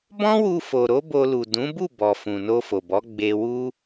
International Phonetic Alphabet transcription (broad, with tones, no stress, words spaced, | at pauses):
bɔ̃˦wu˧fo˨ɾo˨˦ bo˧lu˨ dũ˨˦bu˦˨ bɔ˨ fũ˨no˧fo˨bɔ˨˦ ɡ͡be˧wu˦